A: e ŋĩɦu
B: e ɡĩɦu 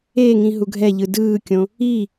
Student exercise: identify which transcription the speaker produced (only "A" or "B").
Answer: A